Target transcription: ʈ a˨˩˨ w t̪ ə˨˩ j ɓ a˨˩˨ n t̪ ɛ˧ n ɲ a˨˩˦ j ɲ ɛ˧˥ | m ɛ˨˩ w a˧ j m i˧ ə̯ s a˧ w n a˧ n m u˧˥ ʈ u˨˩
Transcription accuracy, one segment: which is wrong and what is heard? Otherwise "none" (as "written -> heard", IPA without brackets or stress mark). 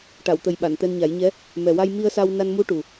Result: none